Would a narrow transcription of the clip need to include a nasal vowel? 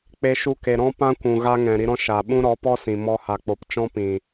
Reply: yes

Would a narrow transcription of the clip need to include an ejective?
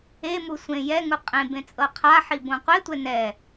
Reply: yes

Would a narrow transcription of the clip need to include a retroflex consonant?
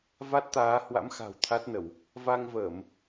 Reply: no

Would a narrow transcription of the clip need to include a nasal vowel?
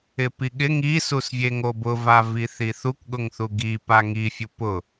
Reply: no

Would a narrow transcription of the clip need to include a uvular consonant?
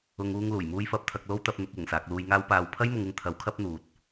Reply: no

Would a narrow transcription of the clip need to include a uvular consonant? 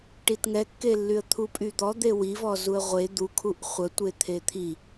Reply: yes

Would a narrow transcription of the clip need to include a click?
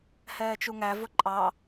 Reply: yes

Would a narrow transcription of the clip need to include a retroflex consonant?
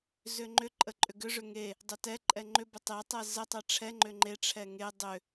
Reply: yes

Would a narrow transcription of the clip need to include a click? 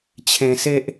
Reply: no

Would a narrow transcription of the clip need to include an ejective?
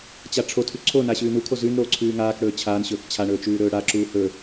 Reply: no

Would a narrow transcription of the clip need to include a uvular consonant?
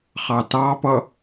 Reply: yes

